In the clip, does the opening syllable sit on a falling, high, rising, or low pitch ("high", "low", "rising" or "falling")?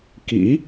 rising